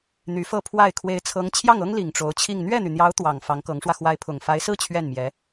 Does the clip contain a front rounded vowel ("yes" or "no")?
yes